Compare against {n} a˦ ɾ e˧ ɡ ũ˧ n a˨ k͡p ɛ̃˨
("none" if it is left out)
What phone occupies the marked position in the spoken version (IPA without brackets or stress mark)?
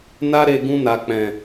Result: n